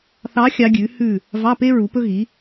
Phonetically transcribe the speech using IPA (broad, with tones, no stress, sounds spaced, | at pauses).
θ ɑ˧˥ xʲ ɑ˧˥ ɡʲ ʉ˩˥ h ʉ˥˨ | v ɑ˧˥˧ p e˥ ɹ u˩˥ p ɵ˥ ɣ i˩˥